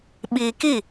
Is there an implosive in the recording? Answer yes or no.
yes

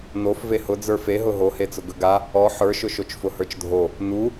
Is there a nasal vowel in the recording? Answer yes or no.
no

